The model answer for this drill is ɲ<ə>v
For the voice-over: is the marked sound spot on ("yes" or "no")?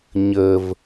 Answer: yes